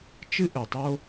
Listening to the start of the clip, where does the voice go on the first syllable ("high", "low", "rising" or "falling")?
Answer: high